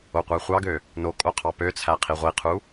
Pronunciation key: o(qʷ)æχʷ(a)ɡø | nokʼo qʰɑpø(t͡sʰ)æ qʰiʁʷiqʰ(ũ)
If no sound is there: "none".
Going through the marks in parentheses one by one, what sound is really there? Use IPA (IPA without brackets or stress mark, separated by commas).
qʷ, ɑ, t͡sʰ, u